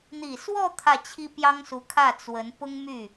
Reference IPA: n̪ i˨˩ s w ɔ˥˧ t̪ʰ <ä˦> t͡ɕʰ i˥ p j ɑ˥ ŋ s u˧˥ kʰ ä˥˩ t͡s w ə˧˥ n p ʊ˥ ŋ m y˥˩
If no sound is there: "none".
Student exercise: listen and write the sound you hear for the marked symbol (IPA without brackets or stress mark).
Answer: ä˥˩